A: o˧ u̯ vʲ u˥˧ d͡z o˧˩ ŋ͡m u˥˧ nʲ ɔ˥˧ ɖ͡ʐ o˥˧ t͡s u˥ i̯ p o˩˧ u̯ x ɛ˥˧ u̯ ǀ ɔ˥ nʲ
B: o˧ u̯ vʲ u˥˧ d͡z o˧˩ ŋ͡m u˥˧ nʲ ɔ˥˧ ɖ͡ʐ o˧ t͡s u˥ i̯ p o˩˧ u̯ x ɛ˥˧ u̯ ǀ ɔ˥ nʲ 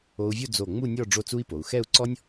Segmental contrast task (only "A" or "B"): A